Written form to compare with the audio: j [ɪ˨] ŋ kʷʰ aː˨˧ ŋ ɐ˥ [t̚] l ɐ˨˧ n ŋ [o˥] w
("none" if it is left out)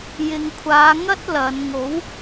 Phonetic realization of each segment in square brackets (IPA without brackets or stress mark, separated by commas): ɪ˨, t̚, o˨˥